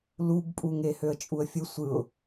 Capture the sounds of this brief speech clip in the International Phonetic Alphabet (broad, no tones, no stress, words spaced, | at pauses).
lubpʼuŋe høə̯t͡ʃʼuə̯fʲɯ sʷɯʊ̯